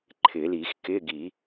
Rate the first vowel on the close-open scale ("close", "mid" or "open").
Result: close